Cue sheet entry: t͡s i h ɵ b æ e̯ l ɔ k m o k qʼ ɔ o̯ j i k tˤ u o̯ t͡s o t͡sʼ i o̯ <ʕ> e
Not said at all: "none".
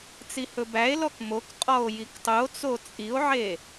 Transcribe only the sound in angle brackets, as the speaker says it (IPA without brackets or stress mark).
ʕ